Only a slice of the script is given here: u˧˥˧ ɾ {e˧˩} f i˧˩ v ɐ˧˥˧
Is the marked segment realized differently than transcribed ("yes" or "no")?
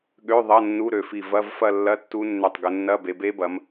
yes